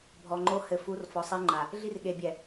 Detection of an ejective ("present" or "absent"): absent